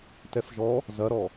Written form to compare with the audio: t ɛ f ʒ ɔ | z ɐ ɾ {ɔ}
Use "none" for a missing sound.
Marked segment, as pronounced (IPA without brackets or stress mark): ɔ